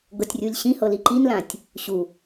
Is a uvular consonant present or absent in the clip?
absent